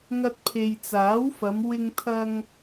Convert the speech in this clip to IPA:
ŋ ɐ˧ t̚ pʰ e˨ j t͡s aː˨˥ w f ɐ˨˧ m w ɪ˨ ŋ t̪ʰ ɐ˨ ŋ

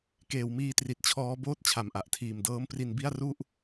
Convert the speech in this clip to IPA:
k eː˩˦ w m iː˧ t r i˨˩ t̚ t͡ɕʰ ɔː˦˥ b oː˥˩ t̚ t͡ɕʰ a˨˩ m ʔ a˨˩ ʔ tʰ iː˨˩ m d ɤː˦˥ m p r i˧ n b i˥˩ a̯ r u˥˩ ʔ

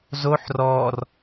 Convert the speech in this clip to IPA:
z o ħ r ɔ r

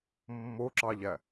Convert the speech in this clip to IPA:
mː o ǁ ɑ ʎ æ

